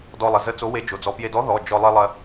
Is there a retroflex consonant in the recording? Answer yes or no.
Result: no